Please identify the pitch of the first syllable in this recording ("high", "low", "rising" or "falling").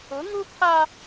rising